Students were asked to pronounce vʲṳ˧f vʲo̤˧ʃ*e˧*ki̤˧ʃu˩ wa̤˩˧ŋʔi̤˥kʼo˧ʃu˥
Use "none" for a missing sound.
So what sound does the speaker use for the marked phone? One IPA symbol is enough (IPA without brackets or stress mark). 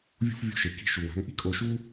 e˩